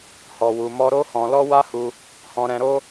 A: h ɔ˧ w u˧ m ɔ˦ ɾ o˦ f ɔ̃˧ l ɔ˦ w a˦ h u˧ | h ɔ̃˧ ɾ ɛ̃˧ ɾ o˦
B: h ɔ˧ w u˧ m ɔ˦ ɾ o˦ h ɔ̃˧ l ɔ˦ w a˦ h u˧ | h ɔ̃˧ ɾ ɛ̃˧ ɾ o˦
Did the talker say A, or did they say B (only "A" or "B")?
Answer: B